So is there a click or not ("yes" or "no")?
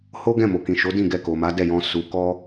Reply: no